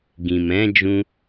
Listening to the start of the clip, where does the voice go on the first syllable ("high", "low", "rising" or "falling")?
low